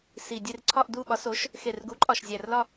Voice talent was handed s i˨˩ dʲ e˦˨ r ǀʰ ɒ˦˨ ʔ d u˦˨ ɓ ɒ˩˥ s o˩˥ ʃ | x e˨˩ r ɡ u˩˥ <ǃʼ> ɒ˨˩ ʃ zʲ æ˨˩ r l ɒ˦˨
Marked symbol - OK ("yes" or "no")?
yes